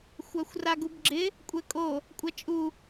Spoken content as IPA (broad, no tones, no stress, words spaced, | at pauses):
xʷaxʷraɡubɡ͡ǁɪ | kʷʼɛkʼo | kʷʼat͡ʃʼu